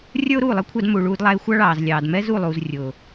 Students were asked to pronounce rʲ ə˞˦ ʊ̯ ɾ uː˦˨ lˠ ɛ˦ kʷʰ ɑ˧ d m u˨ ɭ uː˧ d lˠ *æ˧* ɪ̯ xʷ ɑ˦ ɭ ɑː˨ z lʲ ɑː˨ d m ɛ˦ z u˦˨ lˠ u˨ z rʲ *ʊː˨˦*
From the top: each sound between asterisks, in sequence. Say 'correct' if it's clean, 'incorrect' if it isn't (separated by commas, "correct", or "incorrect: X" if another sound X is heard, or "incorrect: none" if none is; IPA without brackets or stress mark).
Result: correct, incorrect: ʊː˨